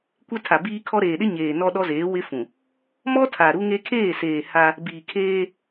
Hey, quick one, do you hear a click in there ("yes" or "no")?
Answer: no